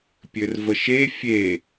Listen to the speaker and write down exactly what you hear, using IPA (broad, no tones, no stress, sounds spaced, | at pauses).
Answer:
pʲ ɘ r v ə ʃ e fʲ e